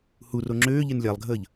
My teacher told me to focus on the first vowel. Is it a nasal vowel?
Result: no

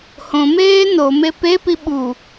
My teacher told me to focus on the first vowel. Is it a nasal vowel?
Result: yes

